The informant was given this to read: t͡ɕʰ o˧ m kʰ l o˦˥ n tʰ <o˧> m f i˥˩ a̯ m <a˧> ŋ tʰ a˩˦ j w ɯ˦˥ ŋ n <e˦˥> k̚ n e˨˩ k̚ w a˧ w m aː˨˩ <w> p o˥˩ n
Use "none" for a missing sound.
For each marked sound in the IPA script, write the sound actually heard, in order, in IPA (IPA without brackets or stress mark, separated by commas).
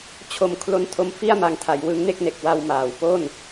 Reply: o˧, a˧, e˥˩, w